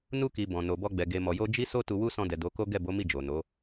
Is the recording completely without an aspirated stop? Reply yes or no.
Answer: yes